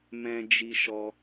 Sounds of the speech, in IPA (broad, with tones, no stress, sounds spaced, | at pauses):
m ɛ̃˧ d͡ʒ i˧ ʃ ɔ˧